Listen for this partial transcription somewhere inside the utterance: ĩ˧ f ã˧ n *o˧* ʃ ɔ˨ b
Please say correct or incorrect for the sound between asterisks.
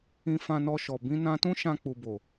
incorrect